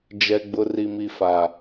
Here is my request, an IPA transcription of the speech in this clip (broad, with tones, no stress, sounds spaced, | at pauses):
d͡ʒ ɛ˨ ɡ͡b ʊ˨ r i˨ m i˨ f a˨